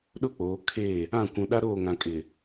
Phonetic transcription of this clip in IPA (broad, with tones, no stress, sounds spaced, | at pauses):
ɗ ʊ˦ k͡p oː˨˦ kʰ e˦˨ | ã˦˨ kʷ ũ˨ ɗ a˦ ɾ oː˦˨ ŋ ã˨ kʼ ɪ˨